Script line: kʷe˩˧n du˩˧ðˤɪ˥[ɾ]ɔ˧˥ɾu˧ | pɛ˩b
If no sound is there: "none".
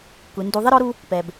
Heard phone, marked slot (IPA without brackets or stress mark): ɾ